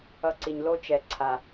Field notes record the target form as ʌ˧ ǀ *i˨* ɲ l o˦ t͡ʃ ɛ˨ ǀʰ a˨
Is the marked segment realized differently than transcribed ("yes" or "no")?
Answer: no